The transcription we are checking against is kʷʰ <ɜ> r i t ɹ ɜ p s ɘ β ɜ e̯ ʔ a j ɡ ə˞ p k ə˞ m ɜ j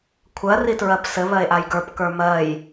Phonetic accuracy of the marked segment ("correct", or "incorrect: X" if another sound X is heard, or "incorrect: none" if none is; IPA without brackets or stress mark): correct